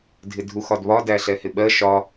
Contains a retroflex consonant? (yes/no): no